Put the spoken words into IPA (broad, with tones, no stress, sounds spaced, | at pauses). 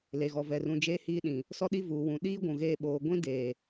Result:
l e˨ ɣ ɔ˨ v ɛ˨ r ũ˨ d͡ʒ eː˦ h iː˦ ɗ ĩ˨ | s ɔ˦ ɗ i˦ v uː˨ w ũ˨ ɗ iː˦ ɡʷ ũ˨ ɣ eː˦ ɓ oː˨ ɡʷ ĩ˦ d eː˨